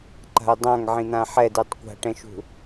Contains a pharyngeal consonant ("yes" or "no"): yes